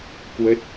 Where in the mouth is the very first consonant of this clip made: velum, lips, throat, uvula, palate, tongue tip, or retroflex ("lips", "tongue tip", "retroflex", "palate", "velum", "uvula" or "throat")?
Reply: velum